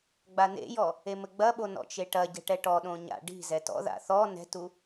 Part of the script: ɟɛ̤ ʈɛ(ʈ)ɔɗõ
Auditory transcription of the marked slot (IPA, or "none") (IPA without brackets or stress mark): ʈ